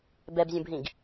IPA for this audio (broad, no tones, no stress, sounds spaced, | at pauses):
b ɛ b zʲ ũ b ɦ ĩ ɡ